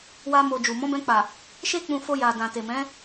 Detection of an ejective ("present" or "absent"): absent